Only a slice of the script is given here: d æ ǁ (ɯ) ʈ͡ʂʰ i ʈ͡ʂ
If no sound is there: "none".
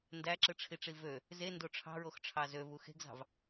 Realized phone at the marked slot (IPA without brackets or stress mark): ɯ